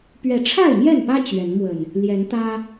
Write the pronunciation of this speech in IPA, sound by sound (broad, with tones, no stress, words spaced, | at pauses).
pɥɛ˨˦ʈ͡ʂʰa˥˨ɪ̯mjɛ˥˨npä˦ t͡ɕɥɛ˨˦nmwə˨˩n | ljɛ˨˦nt̪ä˦